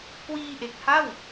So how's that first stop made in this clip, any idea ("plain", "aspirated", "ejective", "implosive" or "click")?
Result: plain